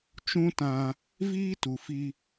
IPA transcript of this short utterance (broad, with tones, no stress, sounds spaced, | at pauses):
t͡ʃ ũ˦ t ã˧ | v iː˦ t u˨ f i˧